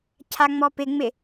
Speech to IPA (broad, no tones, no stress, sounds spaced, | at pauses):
cʰ a ŋ͡m ɔ p ɪ ŋ͡m ɪ